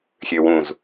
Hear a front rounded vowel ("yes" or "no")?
yes